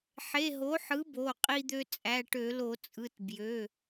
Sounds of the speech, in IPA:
ħ e˩˧˩ ɦ o˩˥ ħ ɯ˩˥ b o˩˧˩ qʼ i˧ d̪ ø˧ t͡sʼ æ˩˧˩ ʈ ø˧˩˧ l o˧˩˧ t͡sʼ ɯ˩˧˩ t b j ø˩˧˩

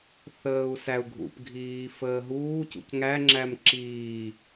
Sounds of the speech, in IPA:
θ əː u̯ s æ u̯ ɡʱ ṵ p ɡʱ iː f əː ɦ uː c ṵ c ŋ æ ŋ͡ǁ æ m ǁ iː

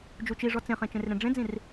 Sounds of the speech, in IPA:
d͡ʒ u t͡ʃ i ʐ ɔ t͡s ẽ χ ẽ t͡ʃ ẽ r ɾ ẽ ɖ͡ʐ ẽ d͡z ĩ r

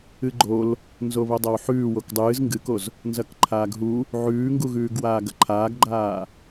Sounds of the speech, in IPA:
ɨ ɡ͡ǃ o l | n z o β o dˤ ɐ w ħ ʉː w o k dˤ ɨː z ŋ ɡ ɨ k o z | n z ɐ k ǃʰ aː ɡ ɦ u | ʕ ʉː ŋ ɡ u ɣ ʉː ɡ w aː ɡ ɐ ǃʰ aː ɡ ɡ͡ǃ aː

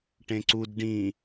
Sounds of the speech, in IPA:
ʈ ẽ ǀ u d ɖ ĩ

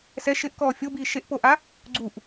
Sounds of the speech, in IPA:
s ɛ ʃ ɪ ʔ k ɔː fʲ o b iː ʃ e ʔ p o ʔ a | ɡ͡ǀ u ʔ

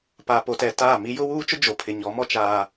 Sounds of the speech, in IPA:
p a˨ p o˨ t ɛ˨ t aː˦˨ m i˦ j ʊ˦ w uː˦ t͡ʃ ʊ˦ d͡ʒ o˨ pʰ ɪ˨ ɲ ɔ˨˦ m ɔ˦ t͡ʃ aː˦

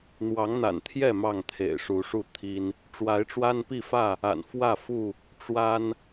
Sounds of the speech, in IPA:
n̪ w ɑ˨˦ ŋ n̪ a̰˨˩ n t̪ʰ j ɛ˥˨ m ɑ˥˨ ŋ t̪ʰ ḛ˨˩ ɪ̯ ʂ u˨˦ ʂ u˥˨ t̪ʰ i˦ n | ʈ͡ʂ w a˨˦ ɪ̯ ʈ͡ʂ w a˦ n p i˥˨ f ä˥˨ | a̰˨˩ n f w ä˥˨ f u˥˨ | ʈ͡ʂ w a˦ n

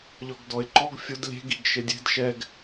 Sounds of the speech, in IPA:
ʎ ɔ ɡ d ɔ ɪ̯ ǃ ɔ ɡ fʲ ʊ d lʲ e̤ ɡ i ɡ ʃ e dʲ e̤ d ʃ ɛ ɡ

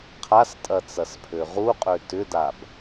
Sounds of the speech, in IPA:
qʰ a s tʼ ɐ t͡s ɐ s pʰ ø ʁ u qʼ ø t ʏ d a b

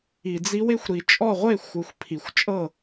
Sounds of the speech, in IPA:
i˨ d͡z i˦˥ w e˦˥ xʷ ɾ i˨ t͡ʃʼ ɔ˥˨ ʁʷ e˥˨ xʷ ɯ˨ xʷ pʰ i˨ xʷ t͡ʃʼ ɤ˥˨

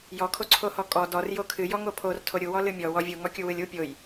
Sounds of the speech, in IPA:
j ɔ kʰ o ǀʰ o h ɔ kʼ ɔ d ɔ r j o kʰ ɨ j ɔ ŋ o pʰ o r tʰ o ɾʲ u w ɔ l ɨ mʲ ɔ w ɔ vʲ u ŋ ɔ kʲ u w ɨ lʲ u pʲ o j

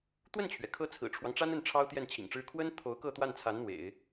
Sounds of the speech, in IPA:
t̪ w ə˥˩ n t͡ɕʰ ɥ ɛ˩ kʰ ɤ˥ t͡sʰ ɹ̩˨˩ ʈ͡ʂʰ w ɑ˦ ŋ ʈ͡ʂ a˥ n ə˥˩ n ʈ͡ʂʰ ɑ˥ ʊ̯ t̪ j ɛ˥˩ n t͡ɕʰ ḭ˨˩ ŋ ʈ͡ʂ ɻ̩˥ kʰ w ə˥ n t̪ʰ o˧˥ ʊ̯ k ɤ˥˧ t̪ w a˥˩ n t͡sʰ a˧˥ n n̪ w ḛ˨˩˦ ɪ̯

